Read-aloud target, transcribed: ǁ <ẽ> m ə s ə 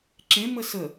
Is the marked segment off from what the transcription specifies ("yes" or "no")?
no